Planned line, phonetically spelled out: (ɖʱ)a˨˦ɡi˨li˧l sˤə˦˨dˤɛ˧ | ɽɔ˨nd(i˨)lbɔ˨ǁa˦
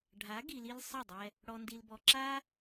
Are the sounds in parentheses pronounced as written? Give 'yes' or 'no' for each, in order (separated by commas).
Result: yes, yes